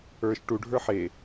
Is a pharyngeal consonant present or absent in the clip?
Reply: present